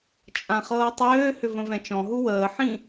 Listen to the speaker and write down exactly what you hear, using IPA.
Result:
t͡ʃʼ ã χ ɤː tˤ øː h ʏ v ə̃ v ɛ̃ t͡ʃ ɔ̃ ɦ u w əː ħ ĩ

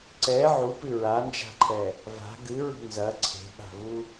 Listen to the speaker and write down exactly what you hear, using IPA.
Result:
ǀ ɛ ʕ u p ɨ ɹ a n d͡ʒ a̤ ǃʰ ɛ | v a̤ ɡ ɨ ɹ ṳ n z ɐ ǀʰ e̤ ɓ a̤ v u

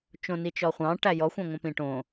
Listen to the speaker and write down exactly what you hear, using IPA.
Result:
t͡ʃ õ n i t͡ʃ ɔ χʷ ɑ̃ ʈ æ j ɔ xʷ æ̃ ŋʷ œ̃ p ĩ ʈ õ

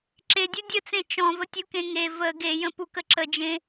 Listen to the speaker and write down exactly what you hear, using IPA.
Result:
ǁ e dʲ u dʲ ə t͡s ẽ t͡ʃ ɔ̃ v ə tʲ u k ẽ ŋ e v ə ɡ e j ə̃ p u k ə ǁ ə d͡ʒ ẽ

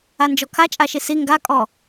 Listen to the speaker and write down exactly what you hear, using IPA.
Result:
a n d͡ʒ ɔ kʰ a t͡ʃʼ a ʃ i s i ŋ ɡ a kʼ ɔ

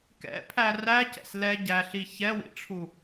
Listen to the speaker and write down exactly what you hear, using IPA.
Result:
k ɛ̰ pʰ æ r æ c ɛ̰ s l ɛ ɟ æ ɬ i ç ɛ w ḭ ʈ͡ʂʰ u

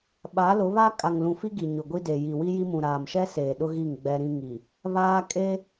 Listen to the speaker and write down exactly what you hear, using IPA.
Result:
ɓ a˨˦ l ʊ˨˦ β a˦ kʼ a˨ ŋ l ũ˨ f i˦ ɡ i˨ ɲ ʊ˨ ɡʷ i˦ d e˨ j i˨ w i˦ j i˦ m ũ˨ ɾ aː˨ m ʃ ɛ˦ s eː˨ ɗ ʊ˦ ɣ i˦˨ ŋ ɡ͡b ɛ˦ ɾ ĩ˦ ŋ i˨ | β aː˦ kʼ e˦

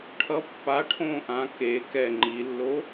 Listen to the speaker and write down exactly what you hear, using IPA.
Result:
ʈʰ ʌ pː a ʈʰ õː ʔ ã k e k ɛ ŋ͡ǃ i lː o

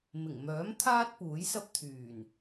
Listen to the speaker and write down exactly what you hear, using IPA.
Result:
m ɪ˨˩ ŋ m œː˨˥ m t̪ʰ aː˥ t̚ p uː˨˥ j s ɐ˥ p̚ t̪ʰ yː˨˩ n

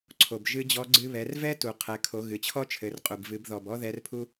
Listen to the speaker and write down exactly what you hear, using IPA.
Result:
ǀʰ o˩ b ʒ ɨ˧˥ d͡ʑ ɔ˧˥ ɡ͡ǀ ɨ˧ β ɛ˩˧ r v ɛ˥ t u˩ qʰ ɛ˩˧ kʰ o˩˧ ɣ ɨ˩ t͡ɕʰ ɔ˥ t͡ʃʰ ɘ˩˧ r qʼ u˩ b v ɨ˩˧ b ð ɔ˩ b ɔ˥ ð ɛ˧˥ r pʰ u˥

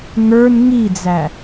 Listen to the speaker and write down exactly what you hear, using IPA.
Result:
ŋ ə˞ n ŋ i d͡z æ

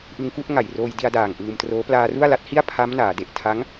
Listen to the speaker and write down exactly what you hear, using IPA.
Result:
ʔ ɯ˧ ŋ k u˥˩ ʔ ŋ a˨˩ j r oː˧ j d i˧ a̯ d aː˨˩ ŋ ʔ ɯː˧ m t r oː˦˥ p l aː˧ r u˥˩ a̯ l a˦˥ t̚ h i˥˩ a̯ pʰ a˦˥ m n aː˩˦ d e˨˩ ʔ tʰ a˦˥ ŋ

